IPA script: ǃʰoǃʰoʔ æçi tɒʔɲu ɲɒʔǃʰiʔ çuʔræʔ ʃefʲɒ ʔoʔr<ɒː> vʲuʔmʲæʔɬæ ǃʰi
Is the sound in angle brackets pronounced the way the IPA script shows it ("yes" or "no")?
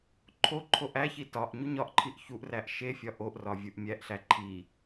no